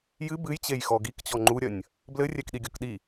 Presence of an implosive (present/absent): present